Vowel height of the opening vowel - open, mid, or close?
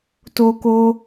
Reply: mid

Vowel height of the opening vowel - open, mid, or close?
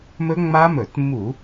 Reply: mid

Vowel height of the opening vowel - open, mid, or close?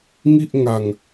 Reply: close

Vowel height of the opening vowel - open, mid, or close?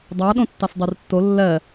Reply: open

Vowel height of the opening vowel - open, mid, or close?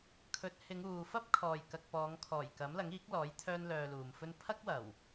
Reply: mid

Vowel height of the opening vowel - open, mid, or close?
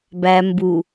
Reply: open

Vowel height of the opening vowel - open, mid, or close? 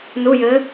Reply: close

